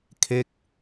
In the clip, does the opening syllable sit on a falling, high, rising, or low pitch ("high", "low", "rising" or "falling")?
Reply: falling